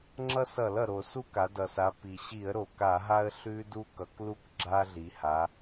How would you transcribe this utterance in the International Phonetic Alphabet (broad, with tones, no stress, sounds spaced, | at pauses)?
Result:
ŋ͡ǁ ʌ˦ s ʌ˧˩˧ l ʌ˩ ɾ o˧˩˧ s u˦ k a˩˧ d ʌ˩ s a˩˧ p i˩ ɕ i˧˩˧ ə̯ ɾ o˩ k a˧˩˧ ɦ a˦ ə̯ ɬ ʉ˦ d u˦ k ʌ˩˧ k l u˦ k ɡ͡ǁ a˦ ɮ i˩˧ h a˩˧